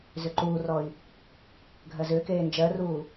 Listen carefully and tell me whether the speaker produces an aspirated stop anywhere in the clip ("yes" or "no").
no